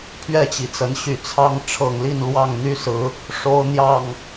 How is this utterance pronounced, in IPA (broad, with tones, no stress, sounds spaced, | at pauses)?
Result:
pʰ ɥ ɛ˥˨ t͡ɕ i˩ t͡s ə˨˦ n ɕ y˨˩ t͡sʰ ɑ˦ ŋ ʈ͡ʂʰ ɤ˨˩ ŋ l i˥˨ n l w ɑ˥˨ ŋ n̪ y˦ s ɹ̩˨˦ | ʂ o˦ ʊ̯ n̪ j ɑ˥˨ ŋ